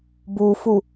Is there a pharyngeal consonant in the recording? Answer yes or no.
no